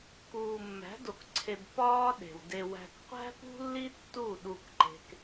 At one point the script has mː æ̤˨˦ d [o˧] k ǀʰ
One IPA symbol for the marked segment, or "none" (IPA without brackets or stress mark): o˨